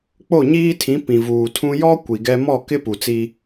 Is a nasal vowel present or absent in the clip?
present